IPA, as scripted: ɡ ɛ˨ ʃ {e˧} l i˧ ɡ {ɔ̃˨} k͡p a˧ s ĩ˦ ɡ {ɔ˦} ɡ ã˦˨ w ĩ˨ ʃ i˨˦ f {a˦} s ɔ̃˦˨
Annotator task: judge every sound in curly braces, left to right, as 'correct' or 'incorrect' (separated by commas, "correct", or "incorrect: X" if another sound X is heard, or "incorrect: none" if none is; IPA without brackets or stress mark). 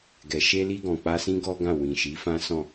correct, correct, correct, incorrect: ã˦